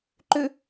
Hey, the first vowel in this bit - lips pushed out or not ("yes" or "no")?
yes